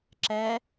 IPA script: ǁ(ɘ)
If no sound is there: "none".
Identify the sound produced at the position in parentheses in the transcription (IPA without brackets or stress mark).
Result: ɛ